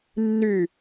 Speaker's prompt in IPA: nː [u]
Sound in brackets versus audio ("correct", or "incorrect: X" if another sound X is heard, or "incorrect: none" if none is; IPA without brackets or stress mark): incorrect: y